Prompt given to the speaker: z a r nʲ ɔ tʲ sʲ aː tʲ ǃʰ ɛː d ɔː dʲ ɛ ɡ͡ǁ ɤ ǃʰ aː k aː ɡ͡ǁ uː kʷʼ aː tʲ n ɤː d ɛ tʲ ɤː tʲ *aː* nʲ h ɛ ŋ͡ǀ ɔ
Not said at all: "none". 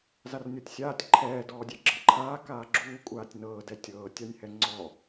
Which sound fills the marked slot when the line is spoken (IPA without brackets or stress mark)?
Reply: a